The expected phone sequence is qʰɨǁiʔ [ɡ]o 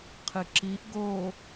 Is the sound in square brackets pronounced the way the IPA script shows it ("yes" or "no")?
yes